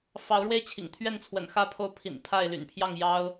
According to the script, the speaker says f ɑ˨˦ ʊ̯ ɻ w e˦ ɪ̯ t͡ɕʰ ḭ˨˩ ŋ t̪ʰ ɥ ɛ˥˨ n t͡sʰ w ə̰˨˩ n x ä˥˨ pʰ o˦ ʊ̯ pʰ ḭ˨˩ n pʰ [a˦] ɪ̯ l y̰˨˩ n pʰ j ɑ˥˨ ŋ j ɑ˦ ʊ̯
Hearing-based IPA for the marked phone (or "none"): a˥˨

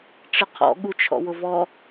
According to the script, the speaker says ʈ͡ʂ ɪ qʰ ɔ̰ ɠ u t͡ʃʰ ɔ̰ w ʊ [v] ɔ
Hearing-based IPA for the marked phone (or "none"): v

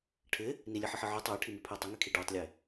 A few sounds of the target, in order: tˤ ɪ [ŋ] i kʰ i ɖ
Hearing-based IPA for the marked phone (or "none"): ŋ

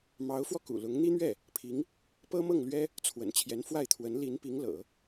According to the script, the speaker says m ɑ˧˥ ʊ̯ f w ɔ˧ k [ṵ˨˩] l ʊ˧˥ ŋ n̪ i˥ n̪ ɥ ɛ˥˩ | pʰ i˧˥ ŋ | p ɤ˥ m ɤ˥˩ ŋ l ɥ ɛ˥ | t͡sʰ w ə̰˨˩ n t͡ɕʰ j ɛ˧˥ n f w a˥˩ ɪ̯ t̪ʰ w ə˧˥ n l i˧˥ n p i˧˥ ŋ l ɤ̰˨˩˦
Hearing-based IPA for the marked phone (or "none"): ṵ˨˩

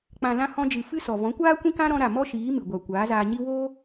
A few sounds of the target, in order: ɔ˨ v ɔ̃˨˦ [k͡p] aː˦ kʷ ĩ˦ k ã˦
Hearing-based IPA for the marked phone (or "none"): kʷ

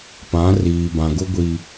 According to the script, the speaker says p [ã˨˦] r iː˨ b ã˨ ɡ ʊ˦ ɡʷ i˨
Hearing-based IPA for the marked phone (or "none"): ã˨˦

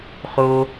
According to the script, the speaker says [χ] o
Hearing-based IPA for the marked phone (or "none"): χ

